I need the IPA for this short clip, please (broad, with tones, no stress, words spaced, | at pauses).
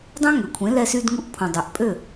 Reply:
dˤœ̃˥ŋø˩kʷʰẽ˩˥ lɛ˧sy˧dŋu˧ʔ pʰõ˩dˤø˩ʔpʼø˥˩